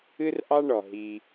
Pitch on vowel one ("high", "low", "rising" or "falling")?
high